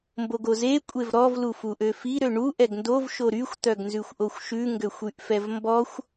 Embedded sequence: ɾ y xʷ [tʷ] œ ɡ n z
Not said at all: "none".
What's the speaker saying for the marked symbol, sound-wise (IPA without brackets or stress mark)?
t̪